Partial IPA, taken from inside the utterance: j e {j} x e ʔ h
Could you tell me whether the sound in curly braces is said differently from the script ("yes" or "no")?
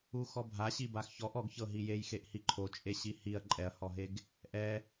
no